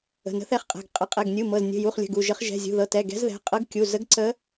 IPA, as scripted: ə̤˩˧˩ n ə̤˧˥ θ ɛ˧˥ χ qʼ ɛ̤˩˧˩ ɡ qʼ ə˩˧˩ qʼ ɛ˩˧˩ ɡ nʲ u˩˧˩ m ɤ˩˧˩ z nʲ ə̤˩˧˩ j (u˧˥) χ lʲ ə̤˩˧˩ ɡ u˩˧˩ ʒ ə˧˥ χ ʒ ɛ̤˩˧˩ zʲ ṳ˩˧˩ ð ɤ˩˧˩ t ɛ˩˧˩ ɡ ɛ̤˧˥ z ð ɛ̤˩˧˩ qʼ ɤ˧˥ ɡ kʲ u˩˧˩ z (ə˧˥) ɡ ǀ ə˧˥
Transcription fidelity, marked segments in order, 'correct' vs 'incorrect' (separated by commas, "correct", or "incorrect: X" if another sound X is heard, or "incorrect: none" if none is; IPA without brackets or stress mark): incorrect: u˩˧˩, correct